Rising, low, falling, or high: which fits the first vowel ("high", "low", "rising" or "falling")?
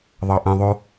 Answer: low